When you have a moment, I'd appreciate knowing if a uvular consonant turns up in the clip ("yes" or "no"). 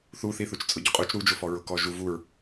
yes